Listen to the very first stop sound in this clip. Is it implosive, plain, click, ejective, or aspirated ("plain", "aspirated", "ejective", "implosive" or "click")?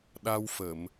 implosive